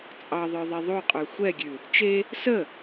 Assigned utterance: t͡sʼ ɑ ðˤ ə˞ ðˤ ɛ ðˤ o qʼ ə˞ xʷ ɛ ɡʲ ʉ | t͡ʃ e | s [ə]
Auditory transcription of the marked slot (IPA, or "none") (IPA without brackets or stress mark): ə